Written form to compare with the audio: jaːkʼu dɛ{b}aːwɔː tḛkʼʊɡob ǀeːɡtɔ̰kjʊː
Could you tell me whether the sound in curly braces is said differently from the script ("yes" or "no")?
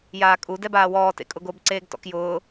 no